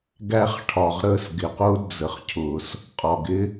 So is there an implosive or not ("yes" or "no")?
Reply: no